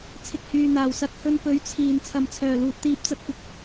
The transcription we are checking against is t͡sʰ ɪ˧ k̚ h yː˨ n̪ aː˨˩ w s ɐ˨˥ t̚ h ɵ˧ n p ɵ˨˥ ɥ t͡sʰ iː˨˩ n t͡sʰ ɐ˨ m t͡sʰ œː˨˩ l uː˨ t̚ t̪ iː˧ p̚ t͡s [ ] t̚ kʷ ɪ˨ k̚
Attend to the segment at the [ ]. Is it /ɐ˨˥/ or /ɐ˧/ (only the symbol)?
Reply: ɐ˧